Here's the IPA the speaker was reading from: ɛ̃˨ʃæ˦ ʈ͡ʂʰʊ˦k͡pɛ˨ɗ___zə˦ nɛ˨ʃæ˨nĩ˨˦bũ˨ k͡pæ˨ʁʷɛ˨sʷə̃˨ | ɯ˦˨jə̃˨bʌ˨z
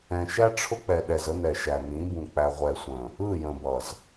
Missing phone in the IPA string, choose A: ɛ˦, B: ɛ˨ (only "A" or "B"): B